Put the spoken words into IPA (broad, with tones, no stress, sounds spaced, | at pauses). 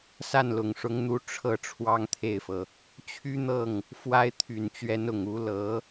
s a˥˩ n l ʊ˨˩ ŋ ʂ ʊ˧˥ ŋ n̪ u˧˥ ʈ͡ʂʰ ɤ˥ ʈ͡ʂʰ w ɑ˥ ŋ t̪ʰ e˥˩ ɪ̯ f ɤ˩ | t͡ɕʰ y˥ n̪ ɤ˥˩ ŋ | f w a˥ ɪ̯ t̪ʰ y˨˩ n t͡ɕ ɥ ɛ˧˥ n ʊ˨˩ ŋ u˧˥ l ɤ˧˥